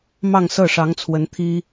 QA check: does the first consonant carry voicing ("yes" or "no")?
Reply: yes